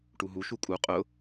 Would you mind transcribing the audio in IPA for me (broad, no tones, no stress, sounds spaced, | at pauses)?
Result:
ʈ u ɦ u ʃ u kʼ u qʼ ʊ